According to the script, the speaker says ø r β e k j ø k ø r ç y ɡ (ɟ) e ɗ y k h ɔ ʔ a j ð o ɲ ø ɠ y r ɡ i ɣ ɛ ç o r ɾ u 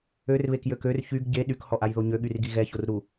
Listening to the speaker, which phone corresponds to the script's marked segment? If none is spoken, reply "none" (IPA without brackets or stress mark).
ɟ